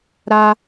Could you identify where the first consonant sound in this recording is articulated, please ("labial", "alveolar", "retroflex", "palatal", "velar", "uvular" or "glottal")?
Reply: alveolar